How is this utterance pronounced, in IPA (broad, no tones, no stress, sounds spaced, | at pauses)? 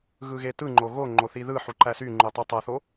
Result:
ɣ ɯ ɣ e t ɯ ŋ͡ǃ o ɣ o ŋ͡ǃ o θ i ð ɯ ħ u ǃ æ s y ŋ͡ǃ u tˤ ɯ tˤ æ θ o